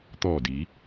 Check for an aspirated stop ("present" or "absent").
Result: absent